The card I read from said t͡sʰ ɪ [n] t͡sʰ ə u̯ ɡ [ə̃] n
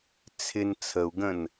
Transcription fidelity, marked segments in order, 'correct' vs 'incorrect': correct, correct

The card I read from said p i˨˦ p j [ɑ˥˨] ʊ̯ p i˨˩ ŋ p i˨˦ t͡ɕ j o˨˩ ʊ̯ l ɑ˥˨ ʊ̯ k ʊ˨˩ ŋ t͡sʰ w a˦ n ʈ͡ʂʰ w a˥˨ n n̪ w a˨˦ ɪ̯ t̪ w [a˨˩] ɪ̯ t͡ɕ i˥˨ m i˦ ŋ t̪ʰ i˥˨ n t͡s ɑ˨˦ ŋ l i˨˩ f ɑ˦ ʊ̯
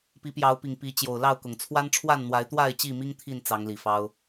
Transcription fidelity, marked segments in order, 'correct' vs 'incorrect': incorrect, incorrect

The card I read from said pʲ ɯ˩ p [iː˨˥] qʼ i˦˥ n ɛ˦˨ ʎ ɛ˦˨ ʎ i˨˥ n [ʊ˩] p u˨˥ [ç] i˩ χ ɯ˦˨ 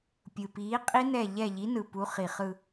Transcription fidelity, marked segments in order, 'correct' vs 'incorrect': correct, incorrect, incorrect

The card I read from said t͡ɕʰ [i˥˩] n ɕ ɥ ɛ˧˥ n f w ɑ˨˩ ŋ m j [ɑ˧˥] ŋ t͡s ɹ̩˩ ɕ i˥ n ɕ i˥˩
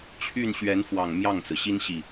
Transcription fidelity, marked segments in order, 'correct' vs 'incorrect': incorrect, incorrect

